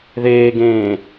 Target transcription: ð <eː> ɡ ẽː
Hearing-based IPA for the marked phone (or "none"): eː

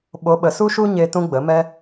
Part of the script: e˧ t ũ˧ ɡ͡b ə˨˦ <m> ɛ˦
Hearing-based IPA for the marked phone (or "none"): m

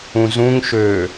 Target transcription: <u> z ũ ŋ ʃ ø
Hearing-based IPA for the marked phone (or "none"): ũ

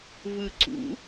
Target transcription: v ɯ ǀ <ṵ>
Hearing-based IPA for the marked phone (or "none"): ṵ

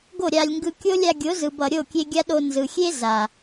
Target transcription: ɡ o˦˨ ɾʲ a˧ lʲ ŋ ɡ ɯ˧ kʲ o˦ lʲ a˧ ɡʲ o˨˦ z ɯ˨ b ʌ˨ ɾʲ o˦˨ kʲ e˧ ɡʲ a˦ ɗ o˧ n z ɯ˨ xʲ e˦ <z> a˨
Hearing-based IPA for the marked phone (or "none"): z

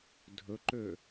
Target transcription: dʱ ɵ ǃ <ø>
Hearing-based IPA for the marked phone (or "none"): ø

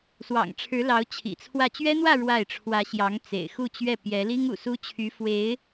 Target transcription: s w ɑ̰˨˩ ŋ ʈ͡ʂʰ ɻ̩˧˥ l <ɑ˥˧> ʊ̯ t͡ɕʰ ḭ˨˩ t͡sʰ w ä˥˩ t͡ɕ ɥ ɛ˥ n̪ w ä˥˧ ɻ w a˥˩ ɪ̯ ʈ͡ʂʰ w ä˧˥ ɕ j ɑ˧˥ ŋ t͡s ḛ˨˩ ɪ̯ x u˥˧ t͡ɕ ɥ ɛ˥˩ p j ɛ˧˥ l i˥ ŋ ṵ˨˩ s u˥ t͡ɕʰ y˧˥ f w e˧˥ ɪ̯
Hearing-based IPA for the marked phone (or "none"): ɑ˧˥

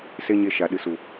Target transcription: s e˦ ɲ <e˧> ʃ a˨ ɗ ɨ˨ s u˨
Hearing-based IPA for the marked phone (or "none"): e˧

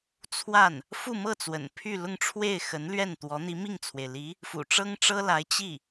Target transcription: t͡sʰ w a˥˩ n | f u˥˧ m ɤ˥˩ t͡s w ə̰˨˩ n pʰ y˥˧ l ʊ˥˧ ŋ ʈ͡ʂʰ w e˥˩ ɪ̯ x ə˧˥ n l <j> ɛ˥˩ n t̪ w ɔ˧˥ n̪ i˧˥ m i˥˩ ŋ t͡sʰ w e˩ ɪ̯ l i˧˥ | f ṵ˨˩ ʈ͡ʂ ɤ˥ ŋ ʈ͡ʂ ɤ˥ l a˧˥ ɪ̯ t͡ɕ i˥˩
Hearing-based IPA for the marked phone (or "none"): ɥ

